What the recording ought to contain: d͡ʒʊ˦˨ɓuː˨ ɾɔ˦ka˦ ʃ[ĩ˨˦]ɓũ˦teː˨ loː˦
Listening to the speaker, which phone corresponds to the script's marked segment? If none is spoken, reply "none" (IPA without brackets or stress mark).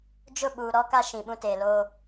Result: ĩ˨